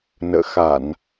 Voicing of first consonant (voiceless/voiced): voiced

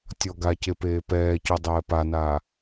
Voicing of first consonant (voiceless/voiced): voiceless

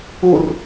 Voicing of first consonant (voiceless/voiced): voiced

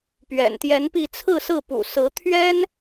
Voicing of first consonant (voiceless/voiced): voiceless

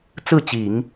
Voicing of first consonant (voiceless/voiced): voiceless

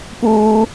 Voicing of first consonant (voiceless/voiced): voiceless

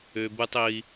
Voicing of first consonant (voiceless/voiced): voiced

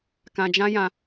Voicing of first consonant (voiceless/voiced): voiceless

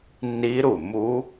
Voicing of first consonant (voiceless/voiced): voiced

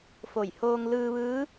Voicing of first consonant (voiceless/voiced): voiceless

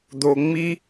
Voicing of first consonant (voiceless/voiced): voiced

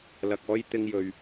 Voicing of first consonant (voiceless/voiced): voiced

